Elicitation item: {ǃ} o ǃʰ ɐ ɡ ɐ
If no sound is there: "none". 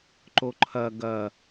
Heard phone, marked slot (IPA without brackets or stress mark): ǃ